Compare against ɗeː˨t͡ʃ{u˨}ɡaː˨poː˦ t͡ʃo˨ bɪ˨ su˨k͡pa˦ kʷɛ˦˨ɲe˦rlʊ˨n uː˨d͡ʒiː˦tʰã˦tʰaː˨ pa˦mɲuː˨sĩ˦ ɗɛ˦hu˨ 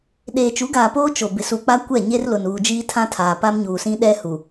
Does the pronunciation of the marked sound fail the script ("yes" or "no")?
yes